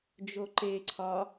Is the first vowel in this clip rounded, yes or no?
yes